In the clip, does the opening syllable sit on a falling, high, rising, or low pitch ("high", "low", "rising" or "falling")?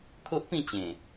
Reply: high